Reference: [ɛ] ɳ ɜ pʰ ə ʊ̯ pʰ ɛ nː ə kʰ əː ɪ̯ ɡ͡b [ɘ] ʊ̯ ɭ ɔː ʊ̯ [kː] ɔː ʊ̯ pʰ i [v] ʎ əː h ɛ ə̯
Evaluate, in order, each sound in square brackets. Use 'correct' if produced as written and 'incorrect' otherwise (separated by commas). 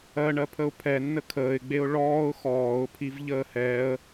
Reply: incorrect, incorrect, incorrect, correct